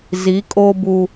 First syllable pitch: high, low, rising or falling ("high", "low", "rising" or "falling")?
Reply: rising